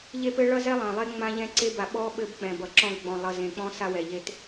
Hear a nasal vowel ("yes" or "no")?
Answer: yes